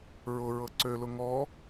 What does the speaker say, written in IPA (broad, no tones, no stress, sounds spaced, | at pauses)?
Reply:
ɹ ʊ ɹ ɤ ǀ ø l ʊ ŋ ɔ